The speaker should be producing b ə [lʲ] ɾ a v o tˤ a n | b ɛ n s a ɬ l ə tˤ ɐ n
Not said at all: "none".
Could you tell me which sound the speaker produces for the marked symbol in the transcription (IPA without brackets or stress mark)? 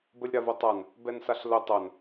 lʲ